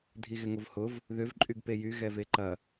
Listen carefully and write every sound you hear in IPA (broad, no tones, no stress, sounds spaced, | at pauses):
dʱ i ɣ ɪ ŋ ʊ v h ʊ v | ð ʏ v ǃʼ y ɡ p e j y ɣ ɛ v e ǃ ɐ